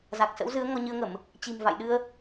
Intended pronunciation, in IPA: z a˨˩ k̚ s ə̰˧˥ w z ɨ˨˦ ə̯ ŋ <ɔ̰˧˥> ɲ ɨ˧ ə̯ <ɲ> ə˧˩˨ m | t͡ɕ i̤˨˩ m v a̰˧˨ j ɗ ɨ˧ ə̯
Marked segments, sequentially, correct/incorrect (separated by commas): incorrect, incorrect